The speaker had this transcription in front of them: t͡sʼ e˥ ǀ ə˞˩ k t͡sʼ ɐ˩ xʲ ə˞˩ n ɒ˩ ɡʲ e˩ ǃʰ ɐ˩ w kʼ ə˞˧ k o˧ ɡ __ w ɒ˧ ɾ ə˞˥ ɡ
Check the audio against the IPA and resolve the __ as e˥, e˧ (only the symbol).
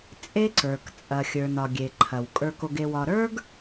e˧